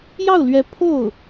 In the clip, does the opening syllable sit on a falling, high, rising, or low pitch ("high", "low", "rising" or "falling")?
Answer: falling